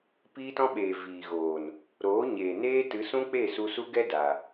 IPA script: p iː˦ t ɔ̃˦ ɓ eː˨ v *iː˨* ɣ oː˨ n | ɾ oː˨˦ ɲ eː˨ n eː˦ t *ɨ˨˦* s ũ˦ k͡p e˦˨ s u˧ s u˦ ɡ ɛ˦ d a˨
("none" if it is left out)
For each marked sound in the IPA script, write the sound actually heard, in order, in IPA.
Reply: iː˨, ɨ˨˦

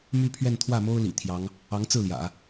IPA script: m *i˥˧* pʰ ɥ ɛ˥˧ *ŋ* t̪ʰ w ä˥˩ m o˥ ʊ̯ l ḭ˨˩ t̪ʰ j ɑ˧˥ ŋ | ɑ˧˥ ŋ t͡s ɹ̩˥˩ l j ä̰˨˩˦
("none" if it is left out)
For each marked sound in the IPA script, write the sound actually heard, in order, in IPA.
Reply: y˥˧, n

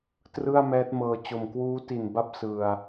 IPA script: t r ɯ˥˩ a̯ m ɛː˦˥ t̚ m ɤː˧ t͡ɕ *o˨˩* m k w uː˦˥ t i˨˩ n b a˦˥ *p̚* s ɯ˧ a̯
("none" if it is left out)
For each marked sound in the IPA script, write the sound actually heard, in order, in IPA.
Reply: o˨˩, p̚

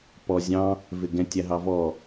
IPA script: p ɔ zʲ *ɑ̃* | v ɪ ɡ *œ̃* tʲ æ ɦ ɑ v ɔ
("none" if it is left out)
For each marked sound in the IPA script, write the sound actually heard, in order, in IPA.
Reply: ɑ̃, ɛ̃

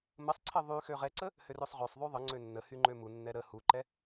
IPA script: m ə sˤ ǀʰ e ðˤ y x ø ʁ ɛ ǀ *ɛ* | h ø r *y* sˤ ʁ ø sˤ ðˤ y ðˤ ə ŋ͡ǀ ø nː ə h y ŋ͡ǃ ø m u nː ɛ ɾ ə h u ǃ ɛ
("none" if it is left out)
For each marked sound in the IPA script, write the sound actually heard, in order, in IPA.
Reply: ə, ø

